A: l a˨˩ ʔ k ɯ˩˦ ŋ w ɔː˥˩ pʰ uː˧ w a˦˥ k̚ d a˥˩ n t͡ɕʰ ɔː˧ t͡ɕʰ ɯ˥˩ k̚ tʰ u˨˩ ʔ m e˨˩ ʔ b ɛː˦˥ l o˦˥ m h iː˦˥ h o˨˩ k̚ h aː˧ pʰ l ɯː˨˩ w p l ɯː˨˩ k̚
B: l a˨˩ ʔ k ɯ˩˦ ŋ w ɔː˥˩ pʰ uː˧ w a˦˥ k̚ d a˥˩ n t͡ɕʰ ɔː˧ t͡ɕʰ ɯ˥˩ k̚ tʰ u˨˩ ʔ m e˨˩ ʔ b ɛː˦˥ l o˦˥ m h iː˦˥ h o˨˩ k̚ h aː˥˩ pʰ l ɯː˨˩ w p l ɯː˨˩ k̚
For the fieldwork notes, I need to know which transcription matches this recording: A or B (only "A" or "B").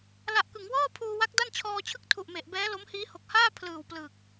B